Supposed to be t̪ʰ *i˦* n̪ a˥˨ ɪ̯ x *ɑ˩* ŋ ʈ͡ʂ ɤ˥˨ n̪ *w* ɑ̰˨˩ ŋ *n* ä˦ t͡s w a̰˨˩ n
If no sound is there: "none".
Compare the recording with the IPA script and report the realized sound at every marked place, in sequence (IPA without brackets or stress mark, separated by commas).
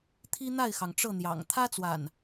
i˦, ɑ˩, j, t̪ʰ